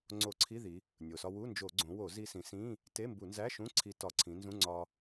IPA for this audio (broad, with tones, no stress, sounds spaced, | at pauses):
ŋ͡ǀ o˧˩˧ ǀʰ i˧˥˧ ð i˩˧ | nʲ o˩ s ɒ˧ w u˧˥˧ n d͡ʒ o˧˩˧ ɡ͡ǀ õ˩˧ w o˧˩˧ z i˧ s ĩ˩˧ s ĩ˧˥˧ | t e˧˥˧ m b u˧˩˧ n z æ˧˥˧ ʃ ũ˧˥˧ ǀʰ i˧ t ɒ˧˩˧ ǀʰ ĩ˩˧ n z ũ˧˥˧ ŋ͡ǀ ɒ˧